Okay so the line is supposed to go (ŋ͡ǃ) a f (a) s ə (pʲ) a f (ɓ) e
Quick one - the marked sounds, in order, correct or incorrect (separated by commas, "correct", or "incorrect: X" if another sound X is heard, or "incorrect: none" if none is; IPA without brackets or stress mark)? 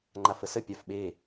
correct, incorrect: ə, correct, correct